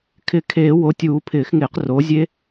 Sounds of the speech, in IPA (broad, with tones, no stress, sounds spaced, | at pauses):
kʰ ɪ˨˩˦ kʰ eː˨˩˦ w o˩˥ tʲ uː˨˩˦ pʰ ɪː˨˩˦ x ŋ ɪː˨˩˦ q r o˩˥ zʲ e˦˥